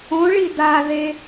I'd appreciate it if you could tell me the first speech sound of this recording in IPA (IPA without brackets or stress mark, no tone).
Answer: õ